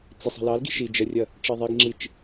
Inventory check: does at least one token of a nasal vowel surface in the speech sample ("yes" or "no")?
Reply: no